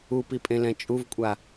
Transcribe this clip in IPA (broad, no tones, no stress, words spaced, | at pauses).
upipʼẽlɛ̃ t͡ʃʼuvkʷʼa